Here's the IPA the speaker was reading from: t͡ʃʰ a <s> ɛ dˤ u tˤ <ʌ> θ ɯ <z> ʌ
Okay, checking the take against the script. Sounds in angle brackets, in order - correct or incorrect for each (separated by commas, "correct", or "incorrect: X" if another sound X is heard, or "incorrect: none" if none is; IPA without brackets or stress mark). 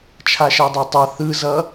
incorrect: ʃ, correct, correct